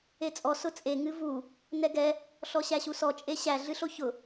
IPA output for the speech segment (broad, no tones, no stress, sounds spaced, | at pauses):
e t͡sʼ ɔ s ʊ t͡sʼ e ŋ ɨ v u | n ɛ ɡ ɛ | ɬ ɔ ɕ æ ɕ u s ɔ t͡ʃʼ e ɕ æ ɮ ɨ ɬ o ç ʊ